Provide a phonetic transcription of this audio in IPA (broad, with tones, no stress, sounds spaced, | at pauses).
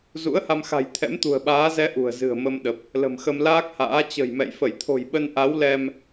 z ṵ˧˥ ə̯ h a˧ m x a̤˨˩ j t̪ʰ ɛ̰˧˥ m t̪ ṳ˨˩ ə̯ ɓ aː˨˦ z ɛ˧ ʔ ṳ˨˩ ə̯ z ɨ̤˨˩ ə̯ m ə˧ m ɗ ə˨˩ p̚ | l ə̤˨˩ m x ə˧ m l aː˦˥ k̚ h a̰ː˧˥ t͡ɕ ə̤˨˩ j m ɛ̰˧˨ j f ə˧˩ j t̪ʰ o̤˨˩ j ɓ ə˧ n ʔ a˨˦ w l ɛ˧ m